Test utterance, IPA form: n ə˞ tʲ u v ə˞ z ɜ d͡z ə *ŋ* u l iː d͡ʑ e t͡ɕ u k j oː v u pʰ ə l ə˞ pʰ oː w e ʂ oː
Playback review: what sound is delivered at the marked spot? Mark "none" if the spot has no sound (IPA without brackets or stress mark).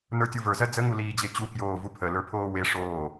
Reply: ŋ